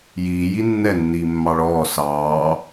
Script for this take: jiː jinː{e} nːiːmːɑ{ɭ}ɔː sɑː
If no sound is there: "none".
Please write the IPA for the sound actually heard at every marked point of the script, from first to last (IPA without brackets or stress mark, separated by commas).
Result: ɛ, ɭ